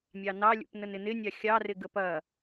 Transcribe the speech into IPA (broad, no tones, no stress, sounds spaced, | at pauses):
mʲ ɑ n ɑ lʲ ṵ p n ə n ɪ n ɪ nʲ ɑ xʲ ɑ r ɪ ɡ ə p ɐ